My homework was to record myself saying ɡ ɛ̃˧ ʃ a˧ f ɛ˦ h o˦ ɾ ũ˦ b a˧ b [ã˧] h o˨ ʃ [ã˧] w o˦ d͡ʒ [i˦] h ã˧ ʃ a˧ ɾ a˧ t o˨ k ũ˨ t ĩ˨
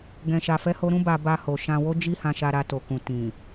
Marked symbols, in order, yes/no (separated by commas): no, yes, yes